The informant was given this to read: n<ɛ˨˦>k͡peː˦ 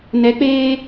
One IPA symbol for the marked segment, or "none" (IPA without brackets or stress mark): ɛ˨˦